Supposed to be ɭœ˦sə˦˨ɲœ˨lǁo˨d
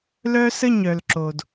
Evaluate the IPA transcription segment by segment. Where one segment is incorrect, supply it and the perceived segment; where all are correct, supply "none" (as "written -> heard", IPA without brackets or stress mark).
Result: ɭ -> l